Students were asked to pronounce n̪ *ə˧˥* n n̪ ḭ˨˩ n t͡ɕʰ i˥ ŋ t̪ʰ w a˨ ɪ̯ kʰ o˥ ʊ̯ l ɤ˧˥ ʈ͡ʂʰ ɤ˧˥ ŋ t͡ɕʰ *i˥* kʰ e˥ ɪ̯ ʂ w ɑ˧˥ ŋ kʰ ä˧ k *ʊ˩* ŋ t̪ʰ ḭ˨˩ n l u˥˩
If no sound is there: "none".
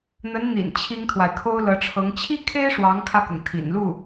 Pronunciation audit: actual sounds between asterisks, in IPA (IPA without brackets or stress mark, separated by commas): ə˧˥, i˥, ʊ˩